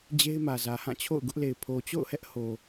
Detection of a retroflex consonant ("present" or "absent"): absent